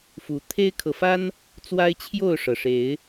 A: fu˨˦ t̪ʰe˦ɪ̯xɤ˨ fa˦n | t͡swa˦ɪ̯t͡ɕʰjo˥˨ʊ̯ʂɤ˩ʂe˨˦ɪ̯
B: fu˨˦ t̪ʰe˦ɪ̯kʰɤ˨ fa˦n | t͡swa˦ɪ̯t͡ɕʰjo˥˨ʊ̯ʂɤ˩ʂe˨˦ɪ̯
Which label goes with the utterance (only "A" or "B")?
B